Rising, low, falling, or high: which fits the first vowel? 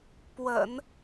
low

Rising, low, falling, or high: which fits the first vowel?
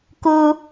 high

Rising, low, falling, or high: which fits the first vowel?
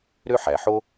high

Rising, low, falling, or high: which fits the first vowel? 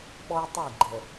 high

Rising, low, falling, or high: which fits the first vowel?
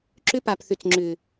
high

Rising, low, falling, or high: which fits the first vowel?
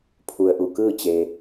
low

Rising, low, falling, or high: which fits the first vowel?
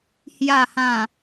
low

